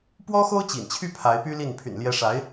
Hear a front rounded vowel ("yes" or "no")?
yes